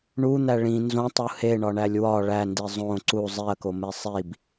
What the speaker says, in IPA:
ɳun̪æ ɭĩ nzõtˤu heɳɒɳælʲ wɒ ɭændi zˤõ ǀu zˤiɐ̯kome sˤib

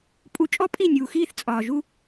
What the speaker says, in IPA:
pʼu˨ t͡ʃʼɔ˦pʼi˦˨nʲuː˨xiː˦˨θ t͡sʼɒː˨ʒu˦

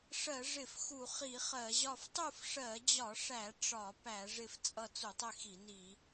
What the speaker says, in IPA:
ʂɜ˧˩˧ʐɪ˧˩˧f xu˧˩˧χi˧˩˧χɜ˧˩˧ʑɒ˥˨f tˤu˥˨fʂɜ˧˩˧d͡ʑɒ˧˩˧ʂæ˧˩˧ ʈ͡ʂɒ˧˩˧pæ˧˩˧ ʐɪ˥˨ft͡sʼʌ˥˨ t͡su˧˩˧tˤɪ˥˨xi˧˩˧ni˧˩˧

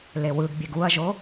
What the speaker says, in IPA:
lewɯɡbʲeɡ uɐ̯ʒo

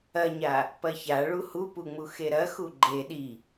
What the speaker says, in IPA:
ɐɲa | pɐça ɭuhupuŋ͡mu xeɾɐxu ɡ͡ǃe ɗi

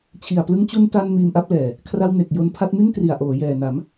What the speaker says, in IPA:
t͡ɕʰi˨˩a̯plɯ˧ŋt͡ɕu˧n ta˧n miː˧mʔa˦˥p̚lɛː˨˩ | kʰra˧w ne˨˩k̚ jo˧npʰa˦˥t̚mi˥˩n tri˨˩a̯ʔoː˩˦jɛː˨˩na˩˦m

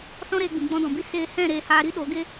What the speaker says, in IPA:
sɔ̃˦ɾeː˧ɡ͡bĩ˨ ɡ͡bɔ̃˧dɔ̃˨bi˦ seː˧hɛ̃˦˨ ɾeː˧haː˧ɾi˦ ɗo˨˦ɡe˦

